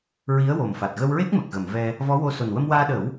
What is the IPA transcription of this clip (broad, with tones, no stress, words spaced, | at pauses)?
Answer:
ɹi˧˥ə̯wo˨˩mfa˨˩t̚ ɣə˧wɹe˦˥k̚ mə˨˩k̚ɣə˨˩˨mvɛ˧ | vɔ˧˥wo˧so˨˩n wə˧mwaː˧ɗə˨˩˦w